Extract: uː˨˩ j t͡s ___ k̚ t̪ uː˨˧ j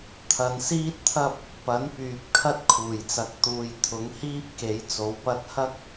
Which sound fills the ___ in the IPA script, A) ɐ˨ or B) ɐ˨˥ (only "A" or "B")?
B